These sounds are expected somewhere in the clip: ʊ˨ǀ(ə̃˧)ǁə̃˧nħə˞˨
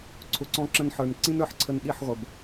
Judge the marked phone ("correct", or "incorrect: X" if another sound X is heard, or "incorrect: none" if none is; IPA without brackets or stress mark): incorrect: ɔ̃˧